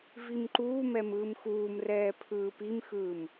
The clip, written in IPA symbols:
v i m ǃ uː m ɛ m ɯː m x uː m r ɛː pʰ ɯː p i m x ɯː m

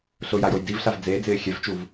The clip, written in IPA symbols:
ɬ ʊ j a j o j d i v ɬ a v d͡z eː d͡z ɪː xʲ ɛ v t͡ʃ u v

